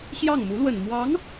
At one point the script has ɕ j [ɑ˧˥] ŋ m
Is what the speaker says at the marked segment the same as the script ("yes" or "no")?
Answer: no